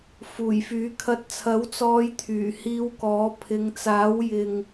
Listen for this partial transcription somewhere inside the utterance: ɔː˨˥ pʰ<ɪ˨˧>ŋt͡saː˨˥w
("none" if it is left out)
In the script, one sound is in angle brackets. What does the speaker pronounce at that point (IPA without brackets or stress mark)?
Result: ɪ˨˧